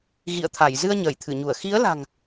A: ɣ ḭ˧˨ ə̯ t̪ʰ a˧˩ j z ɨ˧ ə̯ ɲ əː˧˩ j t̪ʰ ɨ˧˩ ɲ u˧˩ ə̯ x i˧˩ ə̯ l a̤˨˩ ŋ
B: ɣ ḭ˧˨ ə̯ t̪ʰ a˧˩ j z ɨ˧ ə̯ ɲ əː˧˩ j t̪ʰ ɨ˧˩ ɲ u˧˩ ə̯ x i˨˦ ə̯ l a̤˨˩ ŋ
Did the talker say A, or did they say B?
B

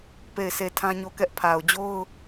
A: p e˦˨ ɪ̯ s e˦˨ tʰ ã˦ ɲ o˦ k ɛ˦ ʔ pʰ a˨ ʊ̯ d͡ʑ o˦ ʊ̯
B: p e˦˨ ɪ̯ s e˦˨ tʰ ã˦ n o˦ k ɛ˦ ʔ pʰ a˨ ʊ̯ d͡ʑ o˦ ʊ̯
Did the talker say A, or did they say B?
A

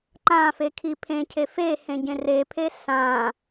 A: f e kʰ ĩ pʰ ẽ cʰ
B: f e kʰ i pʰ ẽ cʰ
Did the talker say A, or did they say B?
B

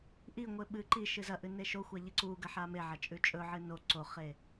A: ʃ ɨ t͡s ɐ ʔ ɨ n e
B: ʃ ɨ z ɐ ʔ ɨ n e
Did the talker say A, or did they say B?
B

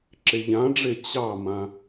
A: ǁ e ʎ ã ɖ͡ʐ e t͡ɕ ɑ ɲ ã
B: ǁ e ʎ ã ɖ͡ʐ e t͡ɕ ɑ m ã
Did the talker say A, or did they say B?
B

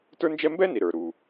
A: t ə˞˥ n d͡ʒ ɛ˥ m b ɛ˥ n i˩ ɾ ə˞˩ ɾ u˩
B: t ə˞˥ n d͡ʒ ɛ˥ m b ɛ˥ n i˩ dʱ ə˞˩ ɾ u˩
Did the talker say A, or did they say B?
A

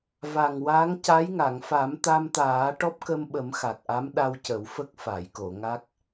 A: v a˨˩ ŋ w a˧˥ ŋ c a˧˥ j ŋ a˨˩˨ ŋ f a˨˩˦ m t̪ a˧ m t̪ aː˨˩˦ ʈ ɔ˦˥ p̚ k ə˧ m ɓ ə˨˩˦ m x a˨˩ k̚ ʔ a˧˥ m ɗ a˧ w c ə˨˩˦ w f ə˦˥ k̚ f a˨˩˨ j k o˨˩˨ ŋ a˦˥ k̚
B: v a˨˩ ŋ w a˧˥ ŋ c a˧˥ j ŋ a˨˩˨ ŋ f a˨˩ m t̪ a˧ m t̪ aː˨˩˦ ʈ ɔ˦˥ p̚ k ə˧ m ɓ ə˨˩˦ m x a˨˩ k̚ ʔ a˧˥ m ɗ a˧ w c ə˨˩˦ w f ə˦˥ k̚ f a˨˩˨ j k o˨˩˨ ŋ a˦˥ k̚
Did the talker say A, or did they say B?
A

